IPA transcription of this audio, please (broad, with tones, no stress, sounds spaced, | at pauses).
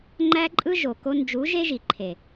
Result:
ŋ͡ǃ æ˦ ǃʼ ɯ˦ ʒ o˨ k o˧ n d͡ʒ u˨˦ ʒ e˦ ʒ i˨ ǃʰ e˨